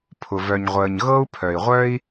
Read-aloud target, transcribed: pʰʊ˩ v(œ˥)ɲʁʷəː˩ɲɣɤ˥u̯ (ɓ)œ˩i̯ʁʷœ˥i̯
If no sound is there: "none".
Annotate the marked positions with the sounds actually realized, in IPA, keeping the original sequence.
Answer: œ˩, pʰ

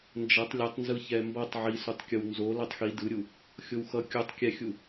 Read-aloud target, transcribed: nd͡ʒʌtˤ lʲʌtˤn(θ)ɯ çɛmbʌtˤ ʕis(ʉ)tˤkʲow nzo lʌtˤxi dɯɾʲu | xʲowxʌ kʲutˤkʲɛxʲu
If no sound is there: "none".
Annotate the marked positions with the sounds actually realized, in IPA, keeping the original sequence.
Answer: z, u

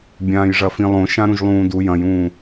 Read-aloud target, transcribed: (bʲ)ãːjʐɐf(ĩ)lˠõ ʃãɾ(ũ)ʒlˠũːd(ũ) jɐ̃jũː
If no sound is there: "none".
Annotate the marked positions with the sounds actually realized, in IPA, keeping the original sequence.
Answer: bʲ, ĩ, ũ, u

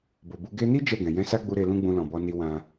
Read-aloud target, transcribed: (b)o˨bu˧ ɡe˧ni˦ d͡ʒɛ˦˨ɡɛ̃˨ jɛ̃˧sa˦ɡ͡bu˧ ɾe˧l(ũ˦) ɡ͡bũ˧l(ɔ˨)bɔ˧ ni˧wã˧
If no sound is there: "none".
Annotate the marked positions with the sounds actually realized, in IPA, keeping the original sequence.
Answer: b, ũ˦, ɔ̃˨

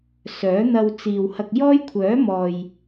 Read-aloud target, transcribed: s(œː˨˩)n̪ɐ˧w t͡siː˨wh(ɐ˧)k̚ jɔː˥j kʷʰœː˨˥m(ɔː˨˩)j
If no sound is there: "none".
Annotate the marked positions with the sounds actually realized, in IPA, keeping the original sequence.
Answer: œː˨˥, ɐ˧, ɔː˨

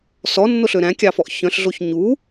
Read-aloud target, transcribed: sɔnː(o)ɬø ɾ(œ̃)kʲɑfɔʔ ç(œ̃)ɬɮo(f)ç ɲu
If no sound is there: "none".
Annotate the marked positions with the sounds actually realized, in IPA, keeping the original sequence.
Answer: o, æ̃, œ̃, none

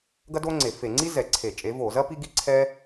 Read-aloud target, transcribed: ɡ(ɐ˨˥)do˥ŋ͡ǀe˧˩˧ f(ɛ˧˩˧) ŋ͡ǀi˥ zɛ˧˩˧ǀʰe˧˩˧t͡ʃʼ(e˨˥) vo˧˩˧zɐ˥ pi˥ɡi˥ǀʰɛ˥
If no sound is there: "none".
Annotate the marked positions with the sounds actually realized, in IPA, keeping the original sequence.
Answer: ɐ˥, e˧˩˧, e˨˥

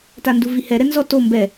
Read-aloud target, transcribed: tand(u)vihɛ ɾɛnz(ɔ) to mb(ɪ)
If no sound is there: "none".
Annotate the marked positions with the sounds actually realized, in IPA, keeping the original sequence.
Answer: u, ɔ, ɛ

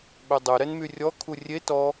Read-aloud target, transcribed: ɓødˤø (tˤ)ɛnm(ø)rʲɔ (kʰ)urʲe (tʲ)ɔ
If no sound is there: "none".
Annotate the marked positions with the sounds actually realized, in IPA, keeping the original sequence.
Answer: ɾ, y, kʰ, t

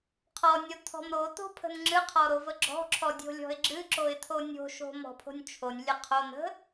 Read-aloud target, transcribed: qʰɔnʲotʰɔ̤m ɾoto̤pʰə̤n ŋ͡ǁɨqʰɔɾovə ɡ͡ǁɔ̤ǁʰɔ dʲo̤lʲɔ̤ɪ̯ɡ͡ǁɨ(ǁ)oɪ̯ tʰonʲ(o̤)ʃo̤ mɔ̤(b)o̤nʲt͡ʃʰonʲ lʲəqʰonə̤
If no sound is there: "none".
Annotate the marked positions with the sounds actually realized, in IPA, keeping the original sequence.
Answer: ǁ, o̤, pʰ

